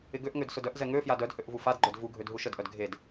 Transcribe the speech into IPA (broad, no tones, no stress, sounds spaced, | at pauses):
ɪ ɡ ø ʔ ŋ ø d s ʊ d œ ʔ z ɛ ŋ ø f j a d œ d h ø ʔ v u f a d ɡ͡ǃ œ d v u ɡʱ ø d ɦ u ʃ ə d ʔ œ d ɡʱ e d